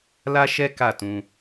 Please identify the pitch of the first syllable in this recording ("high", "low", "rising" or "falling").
high